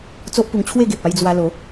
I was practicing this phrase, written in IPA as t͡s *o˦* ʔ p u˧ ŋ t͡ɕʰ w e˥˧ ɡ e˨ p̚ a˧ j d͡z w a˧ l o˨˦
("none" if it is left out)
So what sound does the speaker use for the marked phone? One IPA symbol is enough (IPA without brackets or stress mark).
o˦